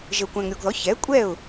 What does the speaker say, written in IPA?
ʒə˨ʊ̯kʷæ̃˨ŋɾʲo˨ɡðɔ˩˥ çɛ˩˥ kʷʼɛ˥˩ʊ̯

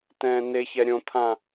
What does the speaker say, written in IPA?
tɛ̃ːneçɛ ɾʲõt̪ʰã

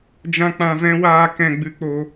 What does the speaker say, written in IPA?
d͡ʒã˦k͡pã˧vɛ̃˦ waː˦ kɛ̃˧ɡ͡bɨ˧k͡po˧

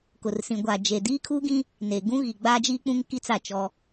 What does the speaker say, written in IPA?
kʊ˨rsĩ˨ ɡʷa˨d͡ʒe˨ diː˦kʰuː˦ɡĩ˦ | ne˨ ɡũ˦ɣi˨ ɡ͡baː˦d͡ʒiː˦k͡pũ˦ŋ ki˦t͡sa˦˨ t͡ʃɔ˦

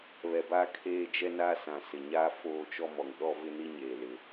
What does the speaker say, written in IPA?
βɛ˨ba˦˨ kʰeː˦˨d͡ʒɛ˦ na˦sã˨sɪ˨ ɲaː˦foː˦˨t͡ʃɔ˦mɔ˨ŋ ɗɔ˦vɪ˦ni˦ ɲeː˨lɪ˨˦

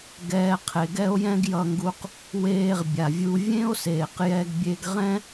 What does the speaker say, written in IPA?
ɡɛː˧ qʰe˩ɡɛ˥o̯jɛ̃˥ɡ jʌ˧ŋɡu˧q | weː˧ʁ bʲa˩vʲu˧ vʲẽ˥o̯seː˩q jɛ˧ɡ bʲe˧ɡʁɛ̃˥

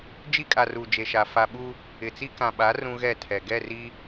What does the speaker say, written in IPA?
d͡ʒi˦kʼa˨ ru˨ d͡ʒe˨ʃa˨ fa˨ɓu˦ | ɪ˨t͡si˦ kã˨ɓa˨˦ rũ˦ɣɛ˦˨tʰɛ˨ ɡɛ˦˨ri˦

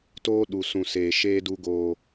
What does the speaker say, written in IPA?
toː˦ ɗu˨sũ˨ seː˨ʃeː˦duː˦ ɡoː˦

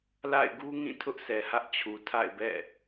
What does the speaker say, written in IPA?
la̰˦˨ɪ̯ɡu˦ŋĩ˦˨ tʰʊ˦ʔsʰɛ˨hä˦ʔ t͡ɕʰu˨tʰa̰˦˨ɪ̯bɛ̰˦˨

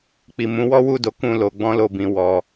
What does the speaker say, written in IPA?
k͡pi˨ mũ˨˦wɔ˦wu˦˨do˨˦ kũ˦˨lo˧ ɡ͡bɔ̃˦lo˦˨bĩ˨˦ wɔ˧

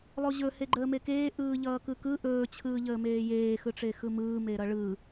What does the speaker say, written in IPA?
lˠoʑɵ heɡ͡ǃəːmekeː ʔɯːʎʌːkɯkɯ ʔɵː t͡ɕʰɯːʎəːmeːjeː xɯʈ͡ʂexɯmɯː meɾʌɭɯ

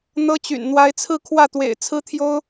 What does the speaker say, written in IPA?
n̪ɤ˥t͡ɕy̰˨˩n n̪wa˧˥ɪ̯t͡sʰɹ̩˥˧kʰwä˥˩t̪wḛ˨˩ɪ̯ t͡sʰɹ̩˥ t̪ʰjo˥ʊ̯

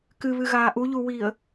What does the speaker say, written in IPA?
kɨβɨɣaː ʔuʎuwiːə̯

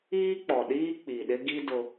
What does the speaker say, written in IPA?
iː˦k͡pɔ˨ɗiː˦ k͡pi˨ɗɪ˦ɡi˦ dʊ˦

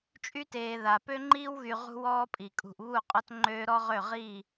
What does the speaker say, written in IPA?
t͡ʃʼy˦teː˨ ða˨ pø˦ŋ͡ǃiː˦wɣy˨ ʁṳ˦wɔː˦pʼi˨ kʼṳ˨ʔβu˦˨qʼɔ˦t ŋ͡ǃøː˦ ɾɔ˦ʁø˦˨ ʁiː˦˨

